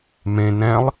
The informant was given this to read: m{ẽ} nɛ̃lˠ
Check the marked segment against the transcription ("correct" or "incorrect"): correct